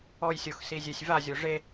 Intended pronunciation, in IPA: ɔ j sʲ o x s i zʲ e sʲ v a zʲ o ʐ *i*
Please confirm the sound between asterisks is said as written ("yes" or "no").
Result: no